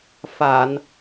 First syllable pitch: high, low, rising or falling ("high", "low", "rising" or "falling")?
low